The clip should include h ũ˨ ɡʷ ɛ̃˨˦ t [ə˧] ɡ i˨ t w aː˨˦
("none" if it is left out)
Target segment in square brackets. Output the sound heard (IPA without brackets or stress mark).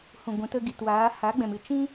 ə˧